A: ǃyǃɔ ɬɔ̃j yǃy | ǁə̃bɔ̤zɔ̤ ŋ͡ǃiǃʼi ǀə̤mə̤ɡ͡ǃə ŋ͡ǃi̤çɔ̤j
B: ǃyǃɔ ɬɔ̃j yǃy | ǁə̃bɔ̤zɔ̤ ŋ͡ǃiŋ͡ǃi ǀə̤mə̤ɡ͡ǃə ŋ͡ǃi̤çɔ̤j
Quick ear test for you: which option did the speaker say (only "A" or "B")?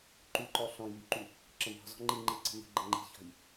B